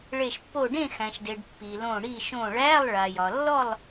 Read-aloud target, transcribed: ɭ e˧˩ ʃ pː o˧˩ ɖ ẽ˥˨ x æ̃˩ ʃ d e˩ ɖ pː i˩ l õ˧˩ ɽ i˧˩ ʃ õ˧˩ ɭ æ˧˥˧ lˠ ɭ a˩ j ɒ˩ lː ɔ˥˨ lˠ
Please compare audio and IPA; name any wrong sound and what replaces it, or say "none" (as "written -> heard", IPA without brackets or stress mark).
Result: none